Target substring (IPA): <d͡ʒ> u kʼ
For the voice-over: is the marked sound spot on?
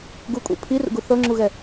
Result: no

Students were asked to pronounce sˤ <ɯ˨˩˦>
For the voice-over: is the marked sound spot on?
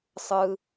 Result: no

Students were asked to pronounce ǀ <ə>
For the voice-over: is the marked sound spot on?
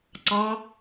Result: no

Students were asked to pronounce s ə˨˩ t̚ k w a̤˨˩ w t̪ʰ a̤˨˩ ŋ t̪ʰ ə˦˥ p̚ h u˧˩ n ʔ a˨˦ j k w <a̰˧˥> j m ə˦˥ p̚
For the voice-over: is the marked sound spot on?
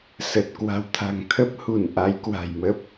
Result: no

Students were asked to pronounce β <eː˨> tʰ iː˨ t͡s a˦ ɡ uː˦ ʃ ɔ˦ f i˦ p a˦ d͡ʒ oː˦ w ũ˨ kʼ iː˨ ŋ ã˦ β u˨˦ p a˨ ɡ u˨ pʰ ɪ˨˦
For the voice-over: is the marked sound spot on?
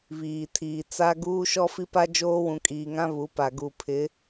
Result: no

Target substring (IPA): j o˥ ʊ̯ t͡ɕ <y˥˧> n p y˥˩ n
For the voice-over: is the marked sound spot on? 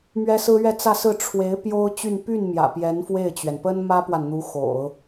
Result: yes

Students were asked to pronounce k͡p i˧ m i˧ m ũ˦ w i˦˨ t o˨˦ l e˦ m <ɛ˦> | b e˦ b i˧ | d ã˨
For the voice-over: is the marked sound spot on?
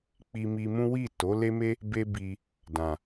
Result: no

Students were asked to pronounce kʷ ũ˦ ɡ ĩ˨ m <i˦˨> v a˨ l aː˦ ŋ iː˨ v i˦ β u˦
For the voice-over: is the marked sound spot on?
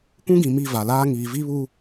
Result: yes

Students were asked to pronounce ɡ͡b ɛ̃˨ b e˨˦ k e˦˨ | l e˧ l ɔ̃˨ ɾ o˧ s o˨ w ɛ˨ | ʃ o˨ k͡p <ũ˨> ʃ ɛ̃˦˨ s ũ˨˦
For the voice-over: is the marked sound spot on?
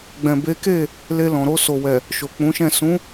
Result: no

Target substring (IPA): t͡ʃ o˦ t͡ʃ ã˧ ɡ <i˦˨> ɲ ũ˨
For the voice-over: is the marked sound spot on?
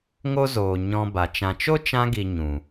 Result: no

